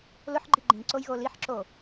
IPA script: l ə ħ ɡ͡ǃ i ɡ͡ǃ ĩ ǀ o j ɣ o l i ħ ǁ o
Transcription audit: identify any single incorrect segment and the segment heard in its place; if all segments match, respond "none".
ə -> ʊ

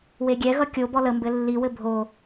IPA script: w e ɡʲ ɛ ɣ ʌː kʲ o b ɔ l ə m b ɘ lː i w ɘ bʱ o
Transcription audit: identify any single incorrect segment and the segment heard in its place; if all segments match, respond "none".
ʌː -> ʌ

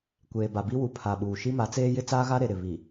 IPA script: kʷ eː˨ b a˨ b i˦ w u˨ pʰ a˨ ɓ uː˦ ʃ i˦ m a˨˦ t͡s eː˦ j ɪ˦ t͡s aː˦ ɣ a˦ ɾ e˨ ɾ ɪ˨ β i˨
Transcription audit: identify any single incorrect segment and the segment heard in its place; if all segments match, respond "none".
uː˦ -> uː˨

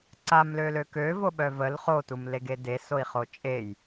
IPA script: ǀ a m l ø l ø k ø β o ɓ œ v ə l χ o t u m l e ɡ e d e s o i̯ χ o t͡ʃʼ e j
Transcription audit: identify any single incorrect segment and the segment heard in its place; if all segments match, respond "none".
β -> v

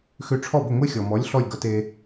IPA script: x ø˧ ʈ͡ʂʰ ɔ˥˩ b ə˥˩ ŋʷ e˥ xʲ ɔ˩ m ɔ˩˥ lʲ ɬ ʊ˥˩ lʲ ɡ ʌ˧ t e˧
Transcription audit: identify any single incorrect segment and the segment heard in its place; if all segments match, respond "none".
ʊ˥˩ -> ɔ˥˩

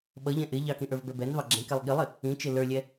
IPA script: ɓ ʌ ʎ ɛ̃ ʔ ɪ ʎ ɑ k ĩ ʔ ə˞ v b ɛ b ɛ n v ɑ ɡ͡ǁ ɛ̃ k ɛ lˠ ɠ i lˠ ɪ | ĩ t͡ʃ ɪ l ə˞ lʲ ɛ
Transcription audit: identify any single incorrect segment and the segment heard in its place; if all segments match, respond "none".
none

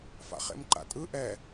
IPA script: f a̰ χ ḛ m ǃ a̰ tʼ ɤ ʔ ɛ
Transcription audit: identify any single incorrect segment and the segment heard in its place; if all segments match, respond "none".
ɤ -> ɯ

